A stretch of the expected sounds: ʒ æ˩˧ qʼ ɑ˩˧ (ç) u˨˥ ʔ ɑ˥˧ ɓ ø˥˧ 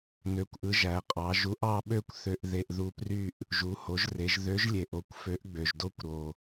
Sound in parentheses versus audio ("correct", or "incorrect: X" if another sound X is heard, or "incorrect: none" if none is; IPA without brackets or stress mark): incorrect: ʒ